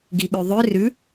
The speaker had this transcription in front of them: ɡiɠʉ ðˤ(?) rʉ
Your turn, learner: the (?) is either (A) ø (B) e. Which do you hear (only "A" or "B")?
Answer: A